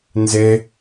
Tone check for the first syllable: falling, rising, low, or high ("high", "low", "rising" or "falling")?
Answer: high